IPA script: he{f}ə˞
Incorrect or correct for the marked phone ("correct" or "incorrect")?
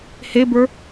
incorrect